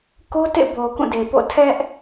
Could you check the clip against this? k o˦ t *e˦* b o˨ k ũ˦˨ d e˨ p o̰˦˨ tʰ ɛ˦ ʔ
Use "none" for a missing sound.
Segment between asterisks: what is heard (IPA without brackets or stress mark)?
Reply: ḛ˦˨